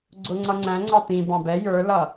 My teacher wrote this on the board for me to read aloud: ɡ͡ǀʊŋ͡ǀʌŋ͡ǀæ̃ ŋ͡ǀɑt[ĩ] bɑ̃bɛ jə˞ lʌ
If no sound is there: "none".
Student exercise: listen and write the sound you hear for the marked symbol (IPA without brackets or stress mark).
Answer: ĩ